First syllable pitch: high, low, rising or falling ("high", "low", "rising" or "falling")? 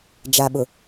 low